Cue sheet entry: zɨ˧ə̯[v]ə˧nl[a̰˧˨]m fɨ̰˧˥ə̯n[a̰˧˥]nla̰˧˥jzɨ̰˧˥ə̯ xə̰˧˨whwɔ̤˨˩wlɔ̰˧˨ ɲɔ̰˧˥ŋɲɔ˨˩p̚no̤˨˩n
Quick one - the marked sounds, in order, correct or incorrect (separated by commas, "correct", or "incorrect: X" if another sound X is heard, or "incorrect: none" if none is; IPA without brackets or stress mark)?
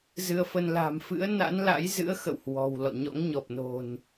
incorrect: f, incorrect: a̤˨˩, correct